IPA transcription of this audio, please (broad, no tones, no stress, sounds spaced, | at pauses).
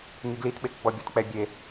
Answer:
ŋ i ɡ l i t ɓ e k ɡ͡b ɔ bʲ ɔ t k͡p ɛ bʲ e